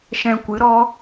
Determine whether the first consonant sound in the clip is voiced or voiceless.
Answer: voiceless